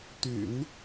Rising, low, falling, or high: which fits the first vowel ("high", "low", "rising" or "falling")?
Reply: low